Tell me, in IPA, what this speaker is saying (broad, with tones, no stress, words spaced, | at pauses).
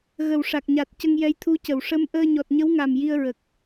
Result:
ɣə˨˩wʂa˨˩k̚ɲa˨˩t̚ cə˧ŋjɛ˧˥j t̪ʰu˧˥cə˨˩˨w ʂə˧˥m ʔəː˧ɲɔ˨˩t̚ ɲə˧˥wŋa˨˩m ji˧ə̯ɹə˨˩k̚